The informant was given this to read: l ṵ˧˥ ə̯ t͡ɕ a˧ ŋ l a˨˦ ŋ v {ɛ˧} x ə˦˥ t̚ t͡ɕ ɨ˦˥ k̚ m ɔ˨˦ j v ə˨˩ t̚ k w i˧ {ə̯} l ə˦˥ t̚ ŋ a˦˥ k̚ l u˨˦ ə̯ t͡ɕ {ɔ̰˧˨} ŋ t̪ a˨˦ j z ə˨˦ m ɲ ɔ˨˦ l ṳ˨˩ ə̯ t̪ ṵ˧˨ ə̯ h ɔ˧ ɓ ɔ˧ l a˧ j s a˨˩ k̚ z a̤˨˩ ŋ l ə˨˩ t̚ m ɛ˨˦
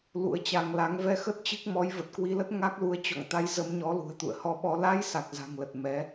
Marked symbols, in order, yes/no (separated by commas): yes, no, yes